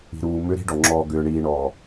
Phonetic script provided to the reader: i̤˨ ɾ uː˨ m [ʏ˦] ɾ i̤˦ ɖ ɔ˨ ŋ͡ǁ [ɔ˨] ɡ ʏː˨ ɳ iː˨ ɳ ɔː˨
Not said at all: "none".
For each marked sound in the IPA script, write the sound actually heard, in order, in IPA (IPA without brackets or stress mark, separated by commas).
ʏ˦, ɔː˨